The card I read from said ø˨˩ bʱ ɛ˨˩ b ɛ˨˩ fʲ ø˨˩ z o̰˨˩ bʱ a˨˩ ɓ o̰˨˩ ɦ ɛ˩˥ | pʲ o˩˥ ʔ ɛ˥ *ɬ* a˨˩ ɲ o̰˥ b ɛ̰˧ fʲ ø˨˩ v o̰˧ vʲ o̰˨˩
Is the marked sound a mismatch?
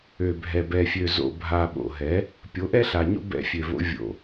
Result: no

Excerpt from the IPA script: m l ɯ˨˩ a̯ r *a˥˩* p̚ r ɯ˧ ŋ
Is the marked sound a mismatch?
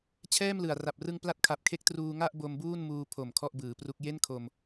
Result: yes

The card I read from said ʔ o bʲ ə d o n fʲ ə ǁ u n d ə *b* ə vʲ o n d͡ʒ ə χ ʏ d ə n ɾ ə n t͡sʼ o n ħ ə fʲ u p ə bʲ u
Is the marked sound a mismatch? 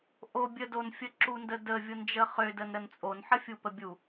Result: yes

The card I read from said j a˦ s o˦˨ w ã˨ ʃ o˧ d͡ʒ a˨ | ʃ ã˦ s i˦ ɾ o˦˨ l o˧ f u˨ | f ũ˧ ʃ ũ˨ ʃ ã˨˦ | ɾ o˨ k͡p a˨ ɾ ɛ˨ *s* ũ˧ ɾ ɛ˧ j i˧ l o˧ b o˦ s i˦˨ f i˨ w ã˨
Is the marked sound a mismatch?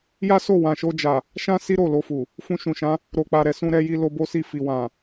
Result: no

